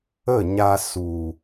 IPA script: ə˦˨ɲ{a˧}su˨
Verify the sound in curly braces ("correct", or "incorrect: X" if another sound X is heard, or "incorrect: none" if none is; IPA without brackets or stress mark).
correct